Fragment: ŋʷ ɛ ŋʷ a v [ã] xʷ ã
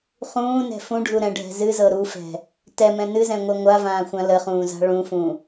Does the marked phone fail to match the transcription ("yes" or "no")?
yes